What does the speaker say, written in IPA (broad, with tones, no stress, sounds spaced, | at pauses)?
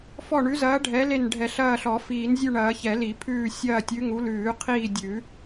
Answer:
f ɔ˦˨ ɳ ʉ˨˦ z ɐː˨˦ ɖʱ ɛ˨˦ l e˦˨ n ɖʱ ɛ˨˩˦ ɬ ɐː˦˨ ɬ ɔ˨˩˦ f iː˨˩˦ n zʲ ʉ˦˨ ɳ ɐː˨˩˦ ç ɛ˨˩˦ l i˨˩˦ pʰ ʉː˦˨ sʲ ɐː˦˨ tʲ ʉ˨˦ ŋ u˨˦ l ʉː˨˩˦ qʰ iː˦˨ dʲ ʉ˨˩˦